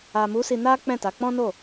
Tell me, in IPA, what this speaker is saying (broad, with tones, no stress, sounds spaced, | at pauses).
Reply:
a˨ m u˨˦ s i˧ n a˦ k͡p ɛ̃˦˨ t a˨˦ k͡p ɔ̃˦ n o˦˨